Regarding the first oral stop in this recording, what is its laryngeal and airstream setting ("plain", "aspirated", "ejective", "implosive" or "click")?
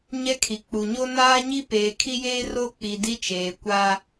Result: aspirated